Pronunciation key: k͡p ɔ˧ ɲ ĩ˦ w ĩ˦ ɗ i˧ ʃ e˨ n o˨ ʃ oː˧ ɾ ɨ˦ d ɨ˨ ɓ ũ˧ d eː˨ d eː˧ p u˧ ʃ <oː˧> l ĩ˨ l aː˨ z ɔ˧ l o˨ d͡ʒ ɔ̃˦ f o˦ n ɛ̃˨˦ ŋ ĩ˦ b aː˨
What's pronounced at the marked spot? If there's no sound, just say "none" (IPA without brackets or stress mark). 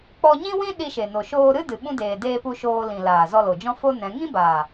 oː˧